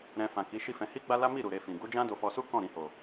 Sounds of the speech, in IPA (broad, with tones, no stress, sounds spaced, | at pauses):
ɾ ɛ̃˧ f ã˨ k i˨˦ ʃ i˦ f ɛ̃˧ h i˦ ɡ͡b a˦ l a˦ m i˦˨ ɾ u˨ ɾ e˧ f ĩ˨ ɡ u˨˦ d͡ʒ ã˦ d o˧ f ɔ˧ s u˦ k ɔ̃˦˨ ɾ ĩ˨ h o˨